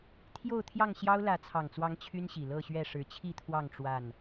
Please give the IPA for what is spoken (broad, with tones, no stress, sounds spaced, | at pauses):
t̪ʰ j o˥˨ ʊ̯ t̪ʰ j ɑ˥˨ ŋ ɕ j ɑ˦ ʊ̯ l ä˨˦ t͡sʰ ɑ˨˩ ŋ t͡s w ɑ˨˦ ŋ t͡ɕʰ y˦ n ɕ i˨˩ l ɤ˥˨ ɕ ɥ ɛ˥˨ ʂ ɻ̩˨˦ t͡ɕʰ i˥˨ t̪ʰ w ɑ˥˨ ŋ ʈ͡ʂ w a˥˨ n